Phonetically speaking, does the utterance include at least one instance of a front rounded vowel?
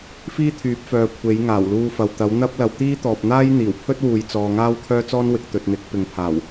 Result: yes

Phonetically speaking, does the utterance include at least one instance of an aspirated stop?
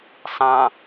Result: no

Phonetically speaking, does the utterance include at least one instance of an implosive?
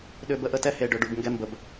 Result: yes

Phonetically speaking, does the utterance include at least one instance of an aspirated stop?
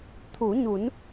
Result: yes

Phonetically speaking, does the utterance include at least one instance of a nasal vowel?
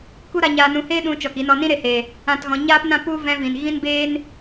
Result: yes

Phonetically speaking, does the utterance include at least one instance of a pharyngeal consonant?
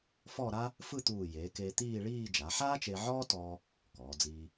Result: yes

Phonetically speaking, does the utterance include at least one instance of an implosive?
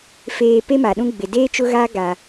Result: yes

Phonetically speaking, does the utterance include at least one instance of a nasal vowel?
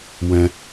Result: yes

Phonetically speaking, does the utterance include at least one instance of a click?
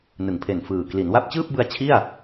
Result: no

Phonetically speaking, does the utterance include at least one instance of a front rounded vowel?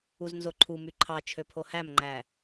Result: yes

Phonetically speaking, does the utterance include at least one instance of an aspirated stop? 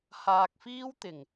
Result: no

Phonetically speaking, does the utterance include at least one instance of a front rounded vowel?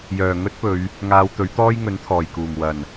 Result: yes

